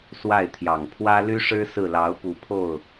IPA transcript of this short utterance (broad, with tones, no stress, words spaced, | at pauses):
swa˥˩ɪ̯t̪ʰjɑ˨˩ŋ pʰwä˥ ly˥ʂɻ̩˥ sɹ̩˥˩lɑ˧˥ʊ̯pu˨˩ pʰo˥˩ʊ̯